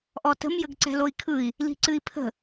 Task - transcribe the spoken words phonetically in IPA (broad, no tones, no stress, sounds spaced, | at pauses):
ʔ ɔ t ə̤ m j ə ɡ ǀ ɛ̤ l o i̯ kʰ ɯ i̯ | l i̤ ǀ ɨ i̯ pʰ ə̤